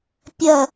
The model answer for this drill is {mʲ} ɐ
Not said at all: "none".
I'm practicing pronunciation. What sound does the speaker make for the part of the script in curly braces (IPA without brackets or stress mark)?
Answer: pʲ